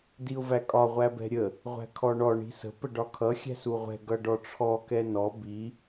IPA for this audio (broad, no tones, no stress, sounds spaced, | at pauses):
d i ʊ̯ v æ kʼ ɒ ʁʷ æ b ɛ̤ ɾʲ ə | ʁʷ æ̤ kʰ ɔ ɳ ɔ ɳ i̤ s ə̤ p ə ɖ ɒ kʰ ʌ xʲ æ̤ s u ʁʷ ɛ̤ ɡ ʌ ɖ ɔ ʈ͡ʂʰ ɔ k ɛ n ɔ b i